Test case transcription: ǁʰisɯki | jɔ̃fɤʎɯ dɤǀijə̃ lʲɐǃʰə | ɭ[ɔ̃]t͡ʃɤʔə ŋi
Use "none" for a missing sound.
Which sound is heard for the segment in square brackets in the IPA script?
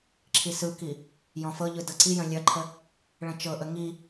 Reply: ə̃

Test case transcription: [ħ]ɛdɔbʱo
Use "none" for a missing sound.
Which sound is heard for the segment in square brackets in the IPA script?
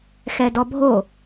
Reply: x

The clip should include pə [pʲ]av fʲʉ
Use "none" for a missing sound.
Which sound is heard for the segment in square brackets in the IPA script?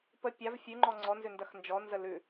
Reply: pʲ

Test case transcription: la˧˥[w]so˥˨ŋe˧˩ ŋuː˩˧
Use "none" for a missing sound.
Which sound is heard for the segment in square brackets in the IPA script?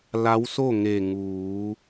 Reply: w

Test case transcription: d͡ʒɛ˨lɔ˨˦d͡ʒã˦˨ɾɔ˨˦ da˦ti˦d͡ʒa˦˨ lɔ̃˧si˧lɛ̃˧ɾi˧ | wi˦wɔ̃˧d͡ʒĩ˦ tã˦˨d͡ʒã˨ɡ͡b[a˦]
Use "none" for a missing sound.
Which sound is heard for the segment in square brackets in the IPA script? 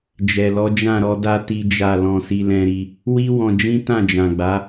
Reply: a˨˦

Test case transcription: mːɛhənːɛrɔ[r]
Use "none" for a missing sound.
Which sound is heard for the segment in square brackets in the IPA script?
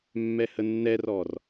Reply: r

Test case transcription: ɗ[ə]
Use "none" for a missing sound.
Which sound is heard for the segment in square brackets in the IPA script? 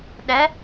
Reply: ɛ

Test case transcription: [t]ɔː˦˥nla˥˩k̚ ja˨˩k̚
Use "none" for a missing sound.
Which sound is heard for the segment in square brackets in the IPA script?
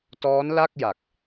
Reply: t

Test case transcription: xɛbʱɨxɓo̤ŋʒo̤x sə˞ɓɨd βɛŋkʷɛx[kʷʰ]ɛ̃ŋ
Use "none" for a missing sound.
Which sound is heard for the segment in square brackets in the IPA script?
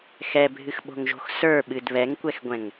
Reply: ɡʷ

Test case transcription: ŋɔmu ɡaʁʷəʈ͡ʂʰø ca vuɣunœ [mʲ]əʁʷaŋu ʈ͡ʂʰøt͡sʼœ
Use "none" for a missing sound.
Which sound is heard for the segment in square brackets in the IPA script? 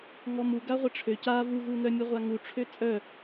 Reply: mʲ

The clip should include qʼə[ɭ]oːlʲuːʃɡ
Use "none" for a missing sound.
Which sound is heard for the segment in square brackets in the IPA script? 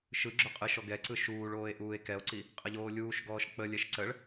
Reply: ʎ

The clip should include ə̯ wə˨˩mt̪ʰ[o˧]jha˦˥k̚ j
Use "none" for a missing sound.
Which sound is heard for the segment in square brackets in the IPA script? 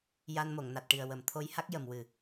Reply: o˧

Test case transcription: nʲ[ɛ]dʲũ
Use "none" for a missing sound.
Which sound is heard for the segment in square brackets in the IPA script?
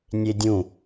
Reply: e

